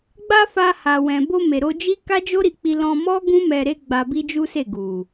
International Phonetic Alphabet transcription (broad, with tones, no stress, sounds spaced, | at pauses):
ɡ͡b a˧ f a˧ h a˨ w ɛ̃˨ b o˧ m e˨ ɾ o˧ d͡ʒ i˦ k a˦ d͡ʒ o˦ ɾ i˧ k͡p i˧ l ɔ̃˧ m ɔ˦ ɡ ũ˦ m ɛ˧ ɾ e˦ ɡ͡b a˧ b i˦ d͡ʒ u˦ s e˦˨ ɡ u˨